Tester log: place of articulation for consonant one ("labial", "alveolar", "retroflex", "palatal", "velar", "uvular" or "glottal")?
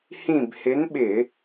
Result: glottal